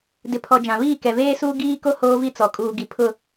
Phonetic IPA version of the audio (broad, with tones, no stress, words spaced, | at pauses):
dɪ˨pʰɔ˨ d͡ʒã˨βiː˦˨ kɛ˨veː˦suː˦ ɡiː˦ko˦ hoː˦vi˦ t͡sɔ˨ kʼuː˨ɡi˨ pʰʊ˦